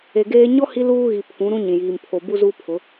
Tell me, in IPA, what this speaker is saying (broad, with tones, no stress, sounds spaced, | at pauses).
e˨ ɡ eː˦ ɲ ɔ˦ h i˦ l uː˦ ɣ i˨ pʰ ũ˨˦ ɾ ũ˦ ɲ ĩ˨ j iː˨ m pʰ o˨ b u˦ z uː˦ pʰ ʊ˨˦